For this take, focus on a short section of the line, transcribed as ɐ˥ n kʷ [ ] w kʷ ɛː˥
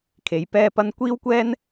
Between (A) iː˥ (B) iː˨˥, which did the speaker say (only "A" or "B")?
A